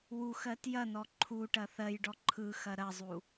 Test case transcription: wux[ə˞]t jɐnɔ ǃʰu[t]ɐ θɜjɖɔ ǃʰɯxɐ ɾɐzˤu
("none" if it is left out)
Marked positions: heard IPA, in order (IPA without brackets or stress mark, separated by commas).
ɜ, ʈ